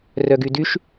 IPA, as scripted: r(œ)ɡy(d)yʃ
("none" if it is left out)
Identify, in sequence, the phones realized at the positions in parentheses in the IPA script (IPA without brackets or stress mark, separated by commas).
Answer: œ, d